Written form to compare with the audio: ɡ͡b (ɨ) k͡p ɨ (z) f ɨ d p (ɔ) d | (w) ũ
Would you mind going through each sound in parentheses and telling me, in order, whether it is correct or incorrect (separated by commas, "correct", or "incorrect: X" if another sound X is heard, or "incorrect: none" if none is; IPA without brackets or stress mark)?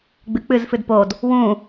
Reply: correct, correct, incorrect: o, correct